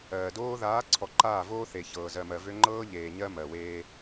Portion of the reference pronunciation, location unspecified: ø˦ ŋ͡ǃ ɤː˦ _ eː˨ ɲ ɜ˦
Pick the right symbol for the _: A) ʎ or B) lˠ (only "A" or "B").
A